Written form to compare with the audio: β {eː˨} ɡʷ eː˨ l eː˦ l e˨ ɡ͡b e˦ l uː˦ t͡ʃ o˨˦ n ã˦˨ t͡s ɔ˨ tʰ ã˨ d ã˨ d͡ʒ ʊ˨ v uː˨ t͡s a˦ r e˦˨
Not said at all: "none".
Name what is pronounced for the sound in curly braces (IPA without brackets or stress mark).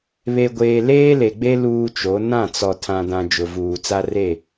e˨